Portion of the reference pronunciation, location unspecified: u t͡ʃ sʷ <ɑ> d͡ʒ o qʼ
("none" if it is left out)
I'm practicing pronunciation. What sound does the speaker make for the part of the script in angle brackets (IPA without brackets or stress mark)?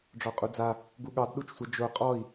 ə